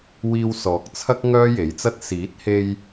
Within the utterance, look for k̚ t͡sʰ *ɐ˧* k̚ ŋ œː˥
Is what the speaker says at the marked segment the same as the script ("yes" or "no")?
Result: no